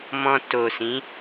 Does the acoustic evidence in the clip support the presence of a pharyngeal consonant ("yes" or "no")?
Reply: no